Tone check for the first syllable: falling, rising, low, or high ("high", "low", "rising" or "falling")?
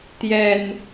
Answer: low